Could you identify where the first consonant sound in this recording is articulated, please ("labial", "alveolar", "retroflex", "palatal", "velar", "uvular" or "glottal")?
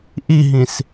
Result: glottal